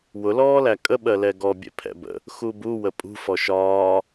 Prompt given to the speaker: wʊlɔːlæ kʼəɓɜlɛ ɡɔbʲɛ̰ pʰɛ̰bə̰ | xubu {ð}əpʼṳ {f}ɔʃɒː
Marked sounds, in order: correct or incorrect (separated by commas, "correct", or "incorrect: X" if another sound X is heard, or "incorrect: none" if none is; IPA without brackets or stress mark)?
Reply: incorrect: w, correct